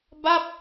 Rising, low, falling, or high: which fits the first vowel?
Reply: falling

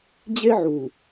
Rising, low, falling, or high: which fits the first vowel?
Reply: high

